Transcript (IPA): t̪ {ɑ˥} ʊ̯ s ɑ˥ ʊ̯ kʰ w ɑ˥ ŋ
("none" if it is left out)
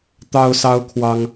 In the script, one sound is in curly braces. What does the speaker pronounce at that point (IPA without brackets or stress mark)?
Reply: ɑ˥